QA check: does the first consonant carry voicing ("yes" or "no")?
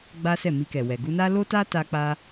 yes